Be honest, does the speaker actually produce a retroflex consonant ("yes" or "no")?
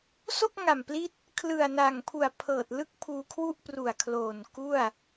no